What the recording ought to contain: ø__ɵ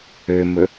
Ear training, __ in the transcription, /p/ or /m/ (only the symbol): m